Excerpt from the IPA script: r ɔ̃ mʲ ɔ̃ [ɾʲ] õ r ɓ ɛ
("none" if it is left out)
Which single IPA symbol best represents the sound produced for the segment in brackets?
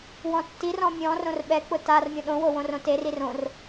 r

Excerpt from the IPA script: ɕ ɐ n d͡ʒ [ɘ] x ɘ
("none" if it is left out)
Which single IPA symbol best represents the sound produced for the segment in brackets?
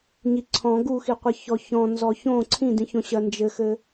ɘ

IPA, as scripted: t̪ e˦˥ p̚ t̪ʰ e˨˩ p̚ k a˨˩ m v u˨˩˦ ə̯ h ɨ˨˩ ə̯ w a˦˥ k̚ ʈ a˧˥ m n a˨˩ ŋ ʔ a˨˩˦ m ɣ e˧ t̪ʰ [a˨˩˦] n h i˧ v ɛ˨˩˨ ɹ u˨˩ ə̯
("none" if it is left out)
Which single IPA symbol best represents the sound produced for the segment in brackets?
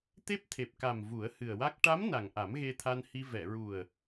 a˧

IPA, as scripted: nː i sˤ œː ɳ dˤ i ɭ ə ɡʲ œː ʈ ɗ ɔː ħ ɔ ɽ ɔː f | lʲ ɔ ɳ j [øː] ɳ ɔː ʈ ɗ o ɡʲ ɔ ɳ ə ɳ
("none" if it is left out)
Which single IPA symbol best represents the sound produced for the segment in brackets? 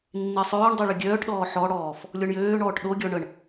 øː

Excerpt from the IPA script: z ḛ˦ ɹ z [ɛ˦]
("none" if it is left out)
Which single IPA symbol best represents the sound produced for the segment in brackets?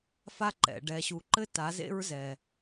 ɛ˨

